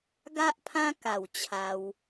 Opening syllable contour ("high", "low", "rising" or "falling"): high